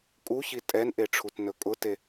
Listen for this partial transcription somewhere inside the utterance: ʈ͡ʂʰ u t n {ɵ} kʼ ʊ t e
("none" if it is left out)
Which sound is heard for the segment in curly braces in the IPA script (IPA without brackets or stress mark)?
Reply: ɵ